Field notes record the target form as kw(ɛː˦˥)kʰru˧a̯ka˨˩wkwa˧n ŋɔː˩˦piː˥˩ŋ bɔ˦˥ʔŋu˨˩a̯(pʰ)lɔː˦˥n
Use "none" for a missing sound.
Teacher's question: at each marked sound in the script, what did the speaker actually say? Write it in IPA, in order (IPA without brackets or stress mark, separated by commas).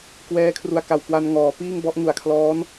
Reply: ɛː˦˥, kʰ